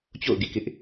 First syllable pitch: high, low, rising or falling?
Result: falling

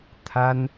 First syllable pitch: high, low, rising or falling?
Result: high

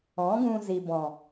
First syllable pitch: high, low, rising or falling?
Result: rising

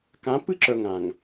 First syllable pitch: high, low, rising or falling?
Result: rising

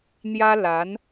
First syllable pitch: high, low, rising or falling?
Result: high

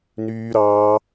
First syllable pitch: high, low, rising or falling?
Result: high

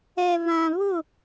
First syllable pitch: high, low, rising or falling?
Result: low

